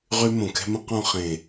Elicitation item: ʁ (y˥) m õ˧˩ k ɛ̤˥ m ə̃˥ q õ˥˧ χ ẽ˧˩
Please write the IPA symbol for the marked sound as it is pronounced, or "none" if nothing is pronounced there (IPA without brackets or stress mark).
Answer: y˥